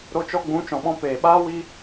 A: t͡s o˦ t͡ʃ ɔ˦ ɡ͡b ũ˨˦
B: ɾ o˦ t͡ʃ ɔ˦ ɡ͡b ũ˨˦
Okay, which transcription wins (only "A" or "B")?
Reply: B